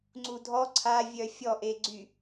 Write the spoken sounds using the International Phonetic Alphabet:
ŋ͡ǀ u dʱ ɔ ǀʰ a vʲ œ fʲ ɔ ʔ e ɡ͡ǀ y

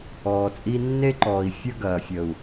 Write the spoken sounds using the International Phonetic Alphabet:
ɔː˨ t͡sʼ i˧ nː e˦ ǃ ɔː˨ i̯ fʲ ə˦ ɡ ɐː˨ fʲ ə˨ u̯

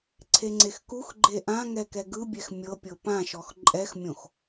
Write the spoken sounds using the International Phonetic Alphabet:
ǀʰ e ŋ͡ǀ e x k u x ɡ͡ǃ e ʔ ã ŋ ɛ k ɛ ɡ ɯ bʲ ɛ x mʲ ɤ pʲ ɤ p ã ʃ ɔ x ǃʼ ɛ x mʲ õ x

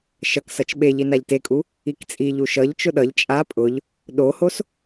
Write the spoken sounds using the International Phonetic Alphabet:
ʃ ʌ k s ʌ t͡ʃ ɓ e ʎ i n a ʎ t e kʼ u | i k t͡sʼ i ʎ u ʃ ʌ ʎ t͡ʃ ʊ ɗ ʌ ʎ t͡ʃʼ a pʼ ʊ ʎ | ɗ o h o s

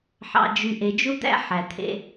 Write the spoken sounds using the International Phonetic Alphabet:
ħ ɑ̰˨ d͡ʒ y˨ ʔ e˨ d͡ʒ u˦ d̪ æ̰˦ ħ æ˨ t̪ʰ ḛ˦

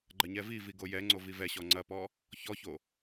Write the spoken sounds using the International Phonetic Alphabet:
ɡ͡ǃ ɐ ɲ ɛ v i v i ɡ o j ɛ ŋ͡ǀ o v i v ɛ ɕ ɔ ŋ͡ǀ ɐ p ɔ | ç ɔ ç o

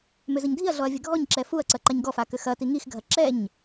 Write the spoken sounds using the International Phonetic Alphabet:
m ʏ z ə ɲ dʱ i ɐ̯ ɮ ɔ ɐ̯ vʲ ɐ ɡʱ ɔ ɲ ǁ ɛ f u ɐ̯ ǀ ɐ ǃ a ɲ ɡ ɔ f a k ʏ x ɐ t i ŋ i x ɡʱ ɐ ǁ ɛ ɲ

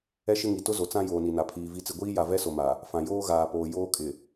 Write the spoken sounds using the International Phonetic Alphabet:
ɛ˦ ʃ ɪ˦ ŋ i˨ t ʊ˦ z o˨ t͡s ã˦ j oː˨ n i˨ n a˨ pʰ iː˨ v i˦ t͡s ɪ˦ ɡʷ iː˦ j a˨ v ɛ˦ s o˨ m a˨ | f ã˨ j oː˦ ɣ aː˨ p oː˨ j oː˦ kʼ ɪ˨

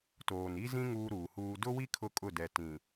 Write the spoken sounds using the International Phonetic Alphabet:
t oː˨ n i˦ z ĩ˦ ŋ uː˦ ɾ uː˨ h uː˦ d ʊ˦ w i˦ kʰ ʊ˦ kʼ ʊ˦˨ d ɛ˨ t ĩ˨

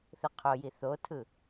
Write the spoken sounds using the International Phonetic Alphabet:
θ ɯ qʰ o j i θ o tʰ ɯ

